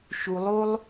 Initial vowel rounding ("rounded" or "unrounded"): rounded